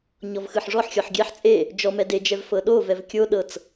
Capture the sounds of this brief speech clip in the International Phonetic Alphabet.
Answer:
ɲɔvxɯħʐɔħxʲɔħ ɡʲɛħ t͡sʼe | d͡ʒɔ mɛded͡ʒɛv fɤɗovɛv kʲoɗɤt͡s

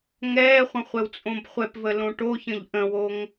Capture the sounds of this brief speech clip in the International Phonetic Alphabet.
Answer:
ŋɛːχʷə̃χʷɛwt͡sʼõb χʷɛpvəlõ ʈoçə̃ʎ ʔə̃woŋ

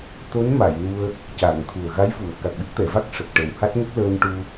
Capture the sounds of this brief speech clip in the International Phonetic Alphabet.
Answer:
t̪o˧˥nma˨˩˨jnu˧ə̯ | ca˨˩˨ŋ t̪ʰu˨˩ə̯ɣa˧˥jvu˨˩˨ə̯ ka˨˩k̚ɗə˦˥k̚t̪ɛ˨˩˨va˦˥k̚ ʂə˨˩k̚ʈə˨˩wha˦˥t̚ŋə˦˥k̚ ləː˧nʈu˧

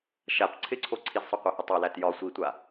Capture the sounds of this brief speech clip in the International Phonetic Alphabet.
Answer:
ʃap ǀʰɪǀʰo ǀʰizsˤoqʷahɪ tˤolæt jɒ sʷitʷa

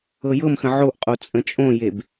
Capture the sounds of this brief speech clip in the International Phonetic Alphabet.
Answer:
ɤjɤmxə̃ ʕoʔqʼo t͡sʼə̃t͡ʃʼõjeb

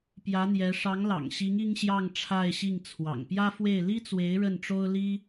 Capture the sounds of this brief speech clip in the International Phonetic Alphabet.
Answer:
pjä˧˥n̪jɛ˧˥ ʂɑ˧˥ŋlɑ̰˨˩ŋɕi˧˥ŋ i˥ŋɕjɑ˥˧ŋʈ͡ʂʰa˥˧ɪ̯ɕi˥˩ŋ t͡sʰwɑ̰˨˩ŋpjä˥fwe˥˩ɪ̯ li˥t͡swe˧˥ɪ̯ ɻə˥˩nʈ͡ʂo˥ʊ̯li˥

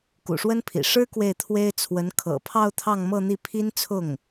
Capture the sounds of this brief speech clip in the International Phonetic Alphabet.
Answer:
kṵ˨˩ʂwə˥npʰḭ˨˩ ʂɻ̩˥ kwe˥˩ɪ̯t̪ʰwe˥ɪ̯ t͡sʰwə˧˥n kʰɤ̰˨˩pʰɑ˥˧ʊ̯ t̪ʰɑ˥˧ŋmɤ˥˧n̪i˥˩ pʰi˥nt͡sʰʊ˥˩ŋ

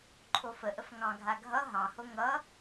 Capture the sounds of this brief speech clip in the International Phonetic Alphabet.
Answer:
ǃʰofəʔəf ŋɑ̃ɡʱa ɡʱʌ ɦɑ̃ho ŋʌ

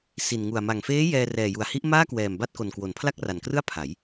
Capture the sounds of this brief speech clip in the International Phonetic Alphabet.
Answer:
si˨˩nŋu˨˩a̯ ma˨˩ŋfeː˦˥ jɛː˧rɛː˨˩ju˩˦a̯hi˦˥ʔ maː˥˩kwɛː˨˩m ba˥˩t̚ko˨˩nkwo˩˦n pʰla˥˩k̚ra˨˩nkrɯ˥˩a̯ pʰa˩˦j

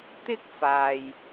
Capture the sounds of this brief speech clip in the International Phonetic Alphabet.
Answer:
t̪ɪ˥k̚ faː˨j

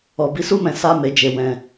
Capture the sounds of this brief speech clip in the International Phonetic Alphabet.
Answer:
ɔ˨bi˨˦su˦mɛ̃˧ sa˦ me˧d͡ʒe˨ wɛ̃˨

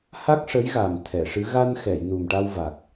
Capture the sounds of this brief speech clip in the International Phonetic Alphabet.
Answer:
ha˦˥k̚ʂə˧˥jɣa˨˩m t̪ʰɛ˨˩˨ʂɨ˧˥ ɣa˧nxɛ˨˩˨j nu˨˩mʈa˧wva˨˩k̚

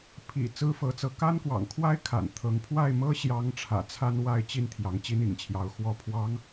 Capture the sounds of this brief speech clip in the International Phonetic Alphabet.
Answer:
pʰḭ˨˩ t͡sɹ̩˥fɤ˧˥t͡sɤ˧˥ ka˥nkwɑ̰˨˩ŋkʰwa˥ɪ̯ kʰa̰˨˩nt̪ʰɤ˧˥ŋ pʰwa˥˩ɪ̯mɤ˥ɕjɑ˧˥ŋ ʈ͡ʂʰä̰˨˩t͡sʰa˥n wa˥˩ɪ̯t͡ɕi˥n t̪ʰjɑ˧˥ŋt͡ɕi˥nḭ˨˩ŋt͡ɕʰjɑ˧˥ʊ̯ xwɔ˧˥pʰwɑ˧˥ŋ

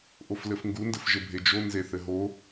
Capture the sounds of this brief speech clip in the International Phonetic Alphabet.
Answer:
ʔoflɘfŋɡundɘf ʒɘbʱed͡ʒo nzeθɘɦo

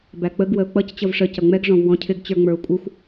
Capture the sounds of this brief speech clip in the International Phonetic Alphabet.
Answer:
bæk͡pəɡ wəʊ̯k͡pʌc t͡ɕʌvʂə cʌŋ͡mɛɡ ʐɔ̃vwɔ̃cʰɪɡ t͡ɕə˞ŋ͡mə˞ʊ̯kʷʼɪxʷ

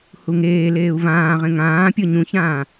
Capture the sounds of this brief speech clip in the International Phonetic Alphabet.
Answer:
huŋeːleːu̯ vãːʁẽ ŋãː pʲɤɲũçãː

